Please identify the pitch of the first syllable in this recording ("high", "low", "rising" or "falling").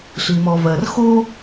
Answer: low